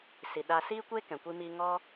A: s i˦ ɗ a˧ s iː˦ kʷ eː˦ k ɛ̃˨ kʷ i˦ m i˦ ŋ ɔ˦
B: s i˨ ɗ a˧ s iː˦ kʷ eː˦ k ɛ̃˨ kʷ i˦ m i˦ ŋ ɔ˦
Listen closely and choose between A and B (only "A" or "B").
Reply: B